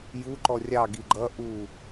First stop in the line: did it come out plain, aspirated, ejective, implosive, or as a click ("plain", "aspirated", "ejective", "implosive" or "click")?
click